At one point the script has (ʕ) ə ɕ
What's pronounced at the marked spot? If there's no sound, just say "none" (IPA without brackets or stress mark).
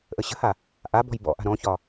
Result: ʔ